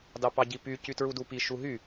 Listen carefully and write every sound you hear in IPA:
d ɑ p ɑ ɟ i p y c y t ɹ u d u p i ʃ u ɦ y

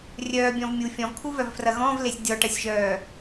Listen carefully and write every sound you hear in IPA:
rʲ œː bʲ ɔ̃ v mʲ u fʲ ɔ̃ v kʰ u v œ v f r ɐ ɣ ɔ̃ v l e sʲ dʲ ɔ ʈ ɐ sʲ ʒ œː

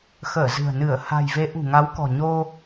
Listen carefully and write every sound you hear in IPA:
x əː˧˩ z ɨ̤˨˩ ə̯ n ɨ˧˩ ə̯ h a̤˨˩ j v e˨˦ ʔ ṳ˨˩ ŋ a˨˦ w k ɔ̤˨˩ ɲ o˧

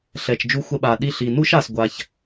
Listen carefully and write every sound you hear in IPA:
ɬ ɛ˩ t͡ʃ d͡ʒ u˧ xʷ ɛ˧ ɓ a˩ ɗ i˧ ɬ i˩ n u˥ ʃ a˩ s ɡʷ a˩ ç

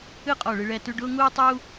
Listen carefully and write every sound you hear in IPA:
ɨ˥˧ qʼ ɔ˧˩ ɭ ɨ˧ ɭ ɛ˧˩ t ʉ˥˧ ɖ ʊː˥ ŋ uː˥ tˤ uː˥

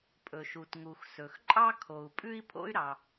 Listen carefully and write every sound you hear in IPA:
pʼ ɵ˩ ʃ u˩ t ŋ u˩ x s ɵ˩ x ǃʼ ɑ˥ kʰ o˩ u̯ pʼ ʉ˥ i̯ pʰ o̰˥ y̯ ɾ ɑ˩

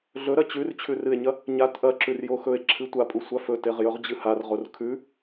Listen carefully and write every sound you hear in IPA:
ɮ ɵ ɾ ɐ t͡ɕ ʉ r t͡ɕʰ ʉ r ɨ e̯ ɲ ɐ | ɲ a t ʔ ɐ ǁ ʉ r j o x ɵ e̯ ǁʰ ɨ tʷ a pʼ u sʷ a f ɵ t e ʁ j ɵ ʁ d͡ʑ ɨ h a r ʁ o r kʰ ʉ

